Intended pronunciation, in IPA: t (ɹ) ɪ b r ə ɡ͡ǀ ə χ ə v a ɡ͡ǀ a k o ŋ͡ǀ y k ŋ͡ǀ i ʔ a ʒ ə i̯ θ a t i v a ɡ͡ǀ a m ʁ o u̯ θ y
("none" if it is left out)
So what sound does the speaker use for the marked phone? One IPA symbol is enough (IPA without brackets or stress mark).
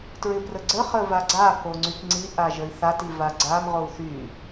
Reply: ɹ